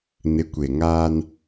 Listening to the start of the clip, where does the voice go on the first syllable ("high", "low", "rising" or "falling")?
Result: rising